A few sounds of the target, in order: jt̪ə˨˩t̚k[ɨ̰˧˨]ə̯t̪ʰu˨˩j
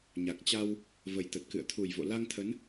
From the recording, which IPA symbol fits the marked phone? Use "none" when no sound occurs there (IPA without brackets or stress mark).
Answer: ɨ̰˧˨